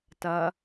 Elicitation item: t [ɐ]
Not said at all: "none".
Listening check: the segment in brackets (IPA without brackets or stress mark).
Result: ɐ